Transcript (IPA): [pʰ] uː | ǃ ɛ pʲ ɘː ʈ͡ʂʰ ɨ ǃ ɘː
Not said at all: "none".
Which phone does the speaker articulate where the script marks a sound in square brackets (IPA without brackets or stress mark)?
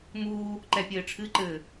m